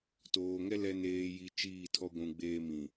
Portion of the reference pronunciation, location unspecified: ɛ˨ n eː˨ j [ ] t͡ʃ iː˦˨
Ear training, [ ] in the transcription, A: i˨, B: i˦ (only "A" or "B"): A